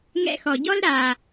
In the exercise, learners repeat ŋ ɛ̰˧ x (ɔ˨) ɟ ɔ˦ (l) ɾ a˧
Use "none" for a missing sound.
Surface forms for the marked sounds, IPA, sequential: ɔ˨, l

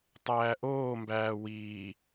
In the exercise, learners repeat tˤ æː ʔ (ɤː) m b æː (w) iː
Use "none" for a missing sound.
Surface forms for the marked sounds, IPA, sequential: oː, w

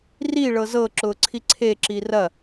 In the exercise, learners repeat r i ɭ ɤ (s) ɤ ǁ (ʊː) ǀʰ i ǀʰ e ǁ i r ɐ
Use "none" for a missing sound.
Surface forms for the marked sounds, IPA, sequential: z, ʊː

